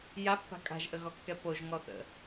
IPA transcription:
j a pː a̤ kʼ a̤ ʒ ʔ ə ɣ ɔ kː ɛ p o ʒ ŋ ɔ θ ə̰

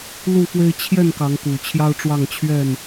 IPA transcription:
l u˥˨ f w e˦ ɪ̯ t͡ɕʰ j ɛ˥˨ n k ɑ˨˦ ŋ k u˨˩ t͡ɕʰ j ɑ˦ ʊ̯ ʈ͡ʂ w ɑ˥˨ ŋ t͡ɕʰ ɥ ɛ˥˨ n

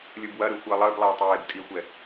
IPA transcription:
lʲ ɯ b w ɐ ɾ ɯ xʷ əː lˠ əː b lˠ eː tˤ j eː b tʼ i xʷ ɛ

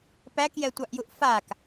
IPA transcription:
p æ k j ɛ tʷ ɑ ʔ j u ʔ f a k

